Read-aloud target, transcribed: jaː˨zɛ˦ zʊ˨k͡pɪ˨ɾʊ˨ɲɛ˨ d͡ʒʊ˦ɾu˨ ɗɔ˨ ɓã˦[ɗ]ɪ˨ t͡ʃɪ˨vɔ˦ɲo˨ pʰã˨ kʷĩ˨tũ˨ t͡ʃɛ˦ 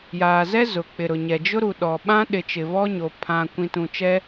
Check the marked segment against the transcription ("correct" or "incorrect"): correct